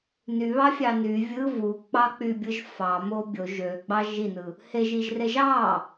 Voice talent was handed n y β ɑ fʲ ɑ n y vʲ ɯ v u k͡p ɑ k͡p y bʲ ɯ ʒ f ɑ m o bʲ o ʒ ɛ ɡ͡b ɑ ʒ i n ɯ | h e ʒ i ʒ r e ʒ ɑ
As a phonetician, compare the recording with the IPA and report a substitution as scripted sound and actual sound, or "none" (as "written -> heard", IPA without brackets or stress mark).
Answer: ɛ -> ø